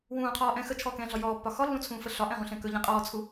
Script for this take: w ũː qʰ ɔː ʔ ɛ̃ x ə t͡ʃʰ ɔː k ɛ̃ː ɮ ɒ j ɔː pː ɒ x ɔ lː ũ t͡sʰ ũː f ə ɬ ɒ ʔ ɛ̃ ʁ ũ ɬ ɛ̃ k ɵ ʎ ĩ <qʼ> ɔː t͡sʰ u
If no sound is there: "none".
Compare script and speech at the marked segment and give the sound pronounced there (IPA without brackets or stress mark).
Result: qʼ